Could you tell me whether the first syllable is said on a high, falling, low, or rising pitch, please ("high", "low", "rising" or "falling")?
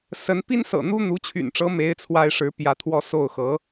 rising